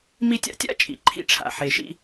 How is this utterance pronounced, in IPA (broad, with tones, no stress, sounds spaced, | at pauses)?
m i˧ tʲ a̰˧ tʲ a̰˥ t͡ʃʼ ḭ˩ ǃʰ ḭ˧ ʈ͡ʂʰ a̰˩ ħ e˩ ʃ ḭ˧